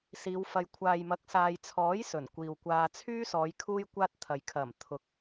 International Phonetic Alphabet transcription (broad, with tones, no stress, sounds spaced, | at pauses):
s iː˨˧ w f ɐ˨ j kʷʰ aː˨ j m ɐ˨˥ k̚ s aː˨ j t͡sʰ ɔː˨˥ j s ɵ˨˩ n kʷ iː˨ w kʷ aː˧ t͡sʰ yː˥ s ɔː˨˧ j kʰ uː˥ j kʷ aː˥ t̚ t̪ʰ ɐ˨ j kʰ ɐ˨˩ m t̪ʰ ʊ˨˥ k̚